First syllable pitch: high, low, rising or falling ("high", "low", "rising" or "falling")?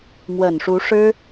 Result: low